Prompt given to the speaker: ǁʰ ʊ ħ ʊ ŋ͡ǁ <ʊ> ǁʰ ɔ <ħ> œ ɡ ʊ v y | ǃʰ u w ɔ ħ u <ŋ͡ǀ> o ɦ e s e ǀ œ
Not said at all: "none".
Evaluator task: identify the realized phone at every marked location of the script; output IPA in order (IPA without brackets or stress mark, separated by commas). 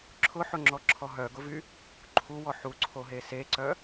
ɔ, ɦ, ǀʰ